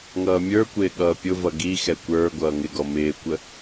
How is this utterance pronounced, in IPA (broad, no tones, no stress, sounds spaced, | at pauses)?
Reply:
ŋ ʌː mʲ ə˞ kʷ ɪː ɠ ʌː pʲ ʊ v ʌ ɡ i x ɛ kʷ ə˞ ɡʷ ʌː ŋ ɪ ɡ ɔ m ɪː kʷ ə